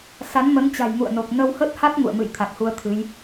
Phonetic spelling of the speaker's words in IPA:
s a˨˦ n m ə˨˦ n t͡ɕ a̤˨˩ j ŋ ṵ˧˨ ə̯ n o˨˩ k̚ n ə˧ w h ə˦˥ t̚ h a˦˥ t̚ ŋ ṵ˧˨ ə̯ m ɨ̰˧˨ j t̪ʰ a˨˩ k̚ h u˧ ə̯ t̪ʰ ɨ˨˦ j

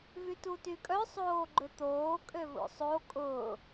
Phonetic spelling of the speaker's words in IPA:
v y t u t y kʼ œ sˤ oː ɡ͡ǃ ʏ t̪ oː kʼ ø v o̰ sˤ o kʼ ʊː

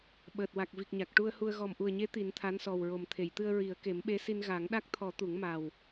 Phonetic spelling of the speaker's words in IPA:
ɓ əː˨˩ t̚ w a˨˩ k̚ v i˨˩ k̚ ɲ a˨˩ k̚ ʈ u˧ ə̯ h u˧ ə̯ ɣ ɔ˨˩ m ʔ u˨˩ ə̯ ɲ e˧˥ t̪ i˨˩˦ n t̪ʰ a˧˥ n s ɔ˨˩ w ɹ o˨˩ m t̪ʰ e˨˩˨ j t̪ ɨ˧ ə̯ ɹ i˨˩˦ ə̯ k e˨˩˦ m ɓ e˧˥ s i˧ n ɣ a˨˩˦ ŋ ɗ a˦˥ k̚ t̪ʰ ɔ˨˩˦ t̪ u˨˩˦ ŋ m a˨˩ w

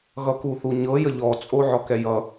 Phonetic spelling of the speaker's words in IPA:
ɣ ʌ k u θ u ɲ ɤ j ə ʎ ɔ t͡sʼ o ʕ ɔ k ɛ j ʌ

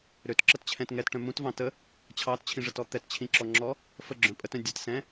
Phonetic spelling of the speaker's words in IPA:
ɾ ø t ǁ ə t t͡ɕʰ ɛ̃ t ŋ ɛ t ʈ œ̃ m ũ t v ɑ̃ t ə | t͡ɕʰ ɑ t t͡ɕʰ ĩ ʐ ə t ɔ t̪ ɛ t t͡ɕʰ ĩ ǁ ɔ ŋ͡ǁ ɔ | f ə ɡ͡ǁ œ̃ pʼ ə t œ̃ dʲ ə t s ɛ̃

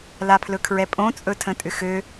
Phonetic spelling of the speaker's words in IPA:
l a pʰ l ɵ kʰ ɹ ɛ pʼ õ t͡sʼ ɵ tʰ ə̃ tʼ ʏ x ø

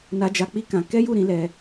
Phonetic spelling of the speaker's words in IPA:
n a˧ d͡ʒ a˧ k͡p i˦ k ã˧ k ɛ˦ j u˦˨ ɾ ĩ˨˦ l ɛ˧

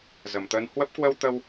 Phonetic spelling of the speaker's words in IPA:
z ə˨˩ m t̪ əː˧ n h w ə˦˥ p̚ k w ə˧ w t̪ ə˧ w

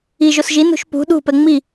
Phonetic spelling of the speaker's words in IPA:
i ʒ o s ʒ i n ṳ ʃ p ṳ ɗ ṳ p ɛ ŋ͡m i

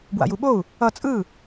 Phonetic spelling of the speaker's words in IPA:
b w a̰ j u ɓ o u̯ | ʌ t͡sʼ ɯ

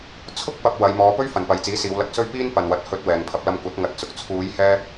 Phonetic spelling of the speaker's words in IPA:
t͡sʰ ʊ˥ k̚ p ɐ˧ p̚ w ɐ˨˧ j m ɔː˨˧ p ɵ˥ ɥ f ɐ˨ n p ɐ˨ j t͡s iː˨˥ s iː˨˧ w l ɐ˧ k̚ s ɵ˥ ɥ p iː˥ n p ɐ˨ n w ɐ˨ t̚ h ɵ˧ t̚ w ɛː˨ ŋ pʰ ɐ˧ p̚ l ɐ˧ m kʷ ɐ˨˥ t̚ ŋ ɐ˨˥ t̚ t͡s ʊ˨ k̚ t͡sʰ uː˨˧ j h ɛː˧

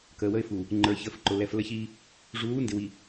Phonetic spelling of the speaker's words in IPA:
k əː˨ w ə˦ ɪ̯ f u˨ | ŋ͡ǃ ə˞˨ ç əː˨ f ǃ ʊ˨ l ɛ˨ f l ə˦ ç iː˦ | ʐ uː˨˦ n d ɪ˨ w i˨

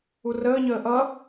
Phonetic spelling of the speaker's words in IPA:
u r əː ɲ əː ʔ ʌ

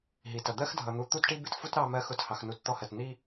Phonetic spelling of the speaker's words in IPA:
ɦ i˨ t ʌ˨ d̪ ɜ˦ x dʱ ʌ˨ n̪ u˨˦ t̪ u˦ t ʈ i˦ b ɪ˦ t f u˦ t ɾ ɑ˦ m ɜ˦ x ʊ˦˨ t h ɑ˨ x n u˨ t t̪ ɔ˦ h ɜ˨ t n̪ i˦

